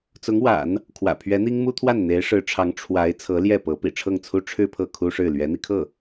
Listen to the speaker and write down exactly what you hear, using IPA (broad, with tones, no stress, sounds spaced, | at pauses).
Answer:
t͡s ʊ˧˥ ŋ w a̰˨˩˦ n | kʰ w ä̰˨˩ pʰ ɥ ɛ˧˥ n̪ i˥ ŋ m u˥ t̪ʰ w a˥˩ n n̪ e˧˥ ɪ̯ ʂ ɻ̩˧˥ ʈ͡ʂʰ ɑ˧˥ ŋ ʈ͡ʂʰ w a˧˥ ɪ̯ t͡sʰ ɤ˧˥ l j ɛ˥˩ p ɤ˧˥ p ḭ˨˩ ʈ͡ʂʰ ɤ˥˩ ŋ t͡sʰ u˥ ʈ͡ʂʰ ɻ̩˥˧ pʰ ɤ˥˩ kʰ u˥ ʂ ɻ̩˥˩ l ɥ ɛ˧˥ n̪ i˧ kʰ ɤ˥˩